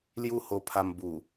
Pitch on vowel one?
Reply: high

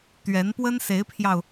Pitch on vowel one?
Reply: rising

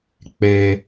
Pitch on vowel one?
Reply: high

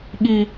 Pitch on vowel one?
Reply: low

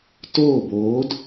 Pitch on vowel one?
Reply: falling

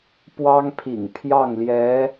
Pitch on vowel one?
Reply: high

